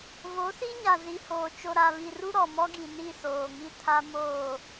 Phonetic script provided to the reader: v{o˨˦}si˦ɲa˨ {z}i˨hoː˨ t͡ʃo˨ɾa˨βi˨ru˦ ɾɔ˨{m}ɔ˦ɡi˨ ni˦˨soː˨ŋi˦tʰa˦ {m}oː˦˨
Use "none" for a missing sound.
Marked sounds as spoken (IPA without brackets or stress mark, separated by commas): o˨˦, z, m, m